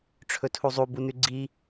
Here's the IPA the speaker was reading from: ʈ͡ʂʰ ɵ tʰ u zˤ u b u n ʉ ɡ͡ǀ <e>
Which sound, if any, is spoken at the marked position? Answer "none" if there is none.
i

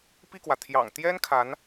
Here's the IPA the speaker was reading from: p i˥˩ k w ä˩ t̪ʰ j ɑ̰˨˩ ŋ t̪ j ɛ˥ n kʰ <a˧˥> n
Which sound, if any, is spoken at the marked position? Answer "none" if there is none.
a˧˥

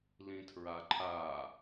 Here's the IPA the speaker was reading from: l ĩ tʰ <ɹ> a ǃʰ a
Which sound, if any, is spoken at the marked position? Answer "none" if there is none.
ɹ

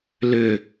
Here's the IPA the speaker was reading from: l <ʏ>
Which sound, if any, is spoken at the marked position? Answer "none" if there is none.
ʏ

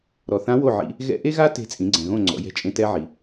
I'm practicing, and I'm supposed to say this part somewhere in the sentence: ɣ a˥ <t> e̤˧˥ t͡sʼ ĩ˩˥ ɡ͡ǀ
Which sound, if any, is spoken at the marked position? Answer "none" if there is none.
t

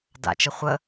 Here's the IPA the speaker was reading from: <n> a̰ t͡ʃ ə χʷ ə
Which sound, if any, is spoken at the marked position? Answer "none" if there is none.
d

